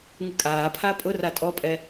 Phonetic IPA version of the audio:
ŋ ɨ kʼ aː pʰ aː pʼ ʊ r a tʼ ɔ pʼ ɛ

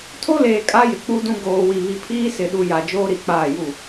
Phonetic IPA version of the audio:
tʰ o˦ l eː˨ kʼ a˦ j ɪ˨ k͡p u˦ d ũ˦ ɡ oː˨ w i˨ β i˨ pʰ iː˦ s ɪ˨ ɗ u˨ j a˨ d͡ʒ oː˦ ɾ i˨ k͡p aː˦˨ j u˦˨

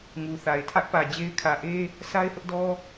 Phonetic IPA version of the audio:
ŋ u˨ θ a˨ ɪ̯ tʰ ä˦ ʔ p ä˨ d͡ʑ e˦ ɪ̯ kʰ ä˨ ʔ e˦ | sʰ a˦ ɪ̯ h ʊ˦ ʔ d ɔ˦

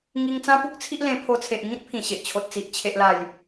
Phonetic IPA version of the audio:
ŋ i˧ ŋ t͡s ã˦ p u˦ k̚ t͡sʰ i˦ ʔ l ẽ˧ pʰ o˧ t͡sʰ e˨ ʔ ŋ ĩ˦ t̚ pʰ ĩ˨˩ ɕ e˨ ʔ t͡ɕʰ o˨ t̚ t͡s i˨ ʔ t͡ɕʰ e˨ ʔ l a˨˩ j

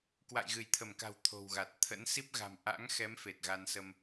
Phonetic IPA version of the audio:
k w a̰˧˨ j ɣ ɨ˧˩ j t̪ʰ ə˧˩ m k a̤˨˩ w t̪ʰ o̤˨˩ w ɣ a˨˩ t̚ t̪ʰ ə̰˧˥ n s i˦˥ p̚ ɣ a̤˨˩ m ʔ a̰˧˥ ŋ x ɛ˨˦ m f e˨˩ t̚ ɣ a˧ n s ə˧ m

